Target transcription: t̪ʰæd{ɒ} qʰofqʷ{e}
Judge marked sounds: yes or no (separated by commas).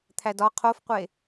yes, yes